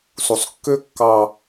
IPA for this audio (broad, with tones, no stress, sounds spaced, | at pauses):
s u˨ sˤ kː ø˦ kː ɑ˦